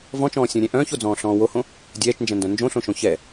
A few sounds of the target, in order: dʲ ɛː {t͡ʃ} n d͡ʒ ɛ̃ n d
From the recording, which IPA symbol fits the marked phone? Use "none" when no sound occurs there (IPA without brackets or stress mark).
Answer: t͡ʃ